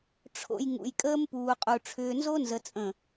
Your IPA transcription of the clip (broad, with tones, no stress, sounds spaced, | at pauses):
ʈ͡ʂʰ o̰˨ j ŋ ṵ˨ j kʼ əː˦ m p uː˨ qʼ u˨ ʈ͡ʂʰ ʏː˨ n z o˦ n z ə˨ t͡sʼ ə̃˨